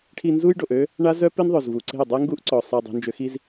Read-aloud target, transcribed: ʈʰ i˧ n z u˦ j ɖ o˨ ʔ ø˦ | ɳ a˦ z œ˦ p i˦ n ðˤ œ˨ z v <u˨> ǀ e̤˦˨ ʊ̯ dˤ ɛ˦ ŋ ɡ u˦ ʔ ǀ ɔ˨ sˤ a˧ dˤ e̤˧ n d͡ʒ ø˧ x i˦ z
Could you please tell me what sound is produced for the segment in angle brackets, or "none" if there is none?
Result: u˨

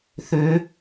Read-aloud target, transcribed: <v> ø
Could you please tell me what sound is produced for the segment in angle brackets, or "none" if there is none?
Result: θ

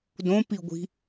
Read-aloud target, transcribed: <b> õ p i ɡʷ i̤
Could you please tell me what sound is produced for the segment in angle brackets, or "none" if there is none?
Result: d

